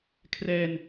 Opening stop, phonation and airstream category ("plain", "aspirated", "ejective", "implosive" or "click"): aspirated